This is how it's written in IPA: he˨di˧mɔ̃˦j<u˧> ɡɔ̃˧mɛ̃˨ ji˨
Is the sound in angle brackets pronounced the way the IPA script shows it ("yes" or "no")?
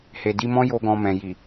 no